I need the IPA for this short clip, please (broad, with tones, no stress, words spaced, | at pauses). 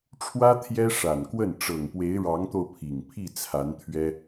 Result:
ʈ͡ʂʰwä˥ t̪ʰjɛ˥ ʂa˨˩nkwə˥˩n ʈ͡ʂɤ˨˩ŋpwe˧˥ɪ̯ ɻɑ˧˥ŋt̪o˧ʊ̯pʰi˨˩ŋ pʰi˥˩ t͡sʰa˧˥nt̪ʰɥɛ˥